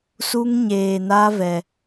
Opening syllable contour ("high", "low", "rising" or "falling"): high